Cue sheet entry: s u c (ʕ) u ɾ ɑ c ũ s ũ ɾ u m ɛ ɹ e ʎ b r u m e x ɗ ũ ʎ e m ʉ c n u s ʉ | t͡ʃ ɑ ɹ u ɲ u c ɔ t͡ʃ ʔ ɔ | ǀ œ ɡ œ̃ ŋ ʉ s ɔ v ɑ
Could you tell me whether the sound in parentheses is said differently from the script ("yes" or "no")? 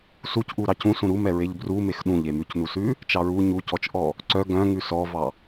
yes